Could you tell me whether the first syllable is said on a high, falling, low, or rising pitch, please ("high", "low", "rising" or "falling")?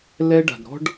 high